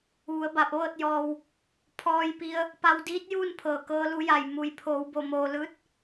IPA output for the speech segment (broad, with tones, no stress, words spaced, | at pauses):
ʋu˩˧ə̯ba˧˩p̚ʋɤː˥˨t̚ jɔː˩w | pʰɔː˧jpi˧ə̯ | pa˧wdiː˧˥t̚juː˥˨n pʰɤː˧˩kɤː˧˥lu˧˥ja˧˩j mu˩˧jpʰoː˩˧wbo˧˩ moː˩lɯː˧t̚